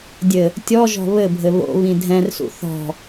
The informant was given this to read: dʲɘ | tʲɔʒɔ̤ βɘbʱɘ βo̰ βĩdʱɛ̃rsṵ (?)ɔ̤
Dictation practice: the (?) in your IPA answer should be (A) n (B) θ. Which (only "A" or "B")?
B